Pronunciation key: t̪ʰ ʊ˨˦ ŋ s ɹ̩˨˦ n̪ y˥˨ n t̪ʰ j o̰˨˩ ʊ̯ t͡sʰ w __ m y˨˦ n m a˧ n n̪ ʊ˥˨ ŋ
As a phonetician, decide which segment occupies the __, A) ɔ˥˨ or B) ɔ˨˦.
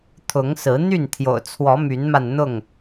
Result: B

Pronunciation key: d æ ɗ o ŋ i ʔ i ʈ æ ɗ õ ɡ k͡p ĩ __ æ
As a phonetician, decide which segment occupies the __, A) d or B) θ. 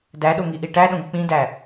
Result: A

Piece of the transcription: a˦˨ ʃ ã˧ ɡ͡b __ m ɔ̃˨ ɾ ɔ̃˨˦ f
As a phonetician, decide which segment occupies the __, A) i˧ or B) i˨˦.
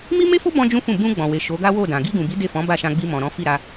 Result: A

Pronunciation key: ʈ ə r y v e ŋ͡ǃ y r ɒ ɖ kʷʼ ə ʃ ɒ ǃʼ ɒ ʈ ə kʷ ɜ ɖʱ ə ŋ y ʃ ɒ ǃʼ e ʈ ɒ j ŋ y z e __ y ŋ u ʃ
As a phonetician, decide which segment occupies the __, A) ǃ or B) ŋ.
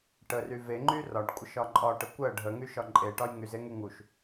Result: B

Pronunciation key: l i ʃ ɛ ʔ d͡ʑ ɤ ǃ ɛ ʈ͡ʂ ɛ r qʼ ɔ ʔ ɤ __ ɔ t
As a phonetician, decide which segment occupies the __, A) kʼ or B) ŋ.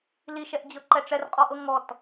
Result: B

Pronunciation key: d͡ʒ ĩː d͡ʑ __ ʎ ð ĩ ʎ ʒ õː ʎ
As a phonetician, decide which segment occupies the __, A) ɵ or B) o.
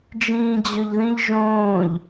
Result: A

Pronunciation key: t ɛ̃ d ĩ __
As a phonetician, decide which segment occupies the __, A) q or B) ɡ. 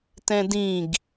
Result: B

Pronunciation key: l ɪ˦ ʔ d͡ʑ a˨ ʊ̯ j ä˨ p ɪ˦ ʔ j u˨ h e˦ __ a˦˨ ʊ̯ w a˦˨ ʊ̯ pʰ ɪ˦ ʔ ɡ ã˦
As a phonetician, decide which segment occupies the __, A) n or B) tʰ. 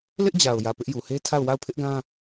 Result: B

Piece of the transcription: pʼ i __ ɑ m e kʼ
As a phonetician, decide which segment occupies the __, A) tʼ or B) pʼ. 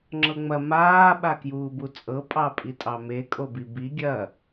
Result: A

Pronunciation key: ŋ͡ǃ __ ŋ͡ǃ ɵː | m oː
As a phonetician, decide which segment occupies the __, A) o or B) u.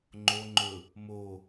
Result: A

